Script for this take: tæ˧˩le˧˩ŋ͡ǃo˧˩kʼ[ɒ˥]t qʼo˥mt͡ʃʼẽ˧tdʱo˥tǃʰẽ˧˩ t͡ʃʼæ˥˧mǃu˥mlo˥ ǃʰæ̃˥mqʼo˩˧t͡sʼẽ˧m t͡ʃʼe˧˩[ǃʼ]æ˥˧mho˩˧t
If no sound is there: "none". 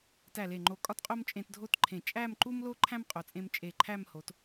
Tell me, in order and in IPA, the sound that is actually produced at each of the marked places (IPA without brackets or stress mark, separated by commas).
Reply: ɒ˥, ǃʰ